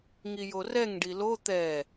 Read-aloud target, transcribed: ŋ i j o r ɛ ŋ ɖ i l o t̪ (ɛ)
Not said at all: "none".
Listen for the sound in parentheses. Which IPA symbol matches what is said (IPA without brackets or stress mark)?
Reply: ɛ